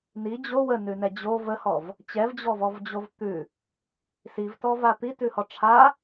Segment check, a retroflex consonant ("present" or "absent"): present